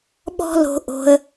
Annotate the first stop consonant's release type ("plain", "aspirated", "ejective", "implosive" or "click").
implosive